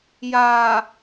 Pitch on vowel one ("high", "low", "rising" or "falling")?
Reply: low